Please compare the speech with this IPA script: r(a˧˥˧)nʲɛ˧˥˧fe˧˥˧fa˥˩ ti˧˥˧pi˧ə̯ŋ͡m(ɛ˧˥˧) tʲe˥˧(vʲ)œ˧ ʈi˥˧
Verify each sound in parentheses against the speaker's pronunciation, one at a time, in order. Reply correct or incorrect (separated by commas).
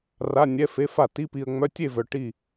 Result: correct, incorrect, incorrect